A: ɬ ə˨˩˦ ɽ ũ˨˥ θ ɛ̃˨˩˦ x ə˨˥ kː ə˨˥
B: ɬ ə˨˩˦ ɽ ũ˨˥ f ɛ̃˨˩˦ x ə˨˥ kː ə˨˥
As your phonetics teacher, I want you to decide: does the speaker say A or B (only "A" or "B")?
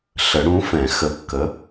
B